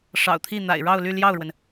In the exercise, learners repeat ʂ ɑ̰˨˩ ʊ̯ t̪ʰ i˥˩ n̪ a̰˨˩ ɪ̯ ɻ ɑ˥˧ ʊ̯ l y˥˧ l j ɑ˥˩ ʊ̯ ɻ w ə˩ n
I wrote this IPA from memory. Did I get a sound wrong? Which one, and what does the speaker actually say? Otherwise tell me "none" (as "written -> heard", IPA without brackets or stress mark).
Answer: none